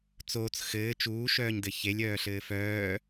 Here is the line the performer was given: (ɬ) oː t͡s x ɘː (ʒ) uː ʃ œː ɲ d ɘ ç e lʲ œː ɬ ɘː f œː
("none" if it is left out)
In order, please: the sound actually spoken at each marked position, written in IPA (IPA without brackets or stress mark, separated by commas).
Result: t͡s, t͡ʃ